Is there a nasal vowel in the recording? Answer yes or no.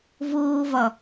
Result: no